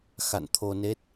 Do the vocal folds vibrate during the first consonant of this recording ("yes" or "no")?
no